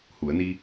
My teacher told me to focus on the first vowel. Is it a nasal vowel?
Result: no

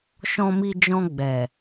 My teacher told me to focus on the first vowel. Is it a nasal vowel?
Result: yes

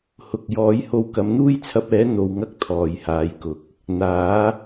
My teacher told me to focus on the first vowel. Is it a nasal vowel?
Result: no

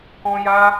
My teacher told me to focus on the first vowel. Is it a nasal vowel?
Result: yes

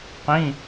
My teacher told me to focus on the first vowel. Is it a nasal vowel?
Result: yes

